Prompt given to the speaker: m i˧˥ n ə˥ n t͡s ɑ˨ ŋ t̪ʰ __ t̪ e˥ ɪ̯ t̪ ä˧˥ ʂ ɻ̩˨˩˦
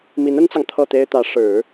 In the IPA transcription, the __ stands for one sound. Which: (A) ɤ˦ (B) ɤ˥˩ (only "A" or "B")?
B